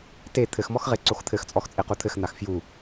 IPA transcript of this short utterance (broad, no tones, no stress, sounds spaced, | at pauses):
t e t̪ʰ ɘ x m ɔ x ʁ e ǀ o x t̪ʰ ɘ x t͡sʼ ɔ x t͡sʼ e q u t̪ʰ ɘ x n̪ a x f j u